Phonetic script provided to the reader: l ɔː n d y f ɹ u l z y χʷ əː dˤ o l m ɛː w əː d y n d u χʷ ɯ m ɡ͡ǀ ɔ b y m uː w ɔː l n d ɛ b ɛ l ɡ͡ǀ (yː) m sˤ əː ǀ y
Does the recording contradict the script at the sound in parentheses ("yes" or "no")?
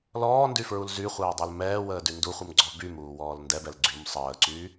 yes